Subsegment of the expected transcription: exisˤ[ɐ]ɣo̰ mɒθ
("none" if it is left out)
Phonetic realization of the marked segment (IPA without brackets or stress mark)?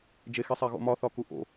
æ